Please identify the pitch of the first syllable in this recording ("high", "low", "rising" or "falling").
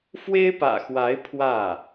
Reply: high